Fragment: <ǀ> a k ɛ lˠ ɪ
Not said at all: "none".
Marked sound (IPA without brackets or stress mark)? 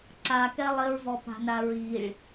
ǀ